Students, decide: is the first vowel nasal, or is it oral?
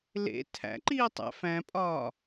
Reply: oral